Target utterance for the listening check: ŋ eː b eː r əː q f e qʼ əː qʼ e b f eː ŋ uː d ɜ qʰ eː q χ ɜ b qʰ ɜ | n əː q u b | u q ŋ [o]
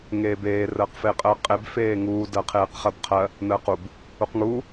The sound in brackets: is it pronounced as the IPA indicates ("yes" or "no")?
no